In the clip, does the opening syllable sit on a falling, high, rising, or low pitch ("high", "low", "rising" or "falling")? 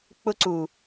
high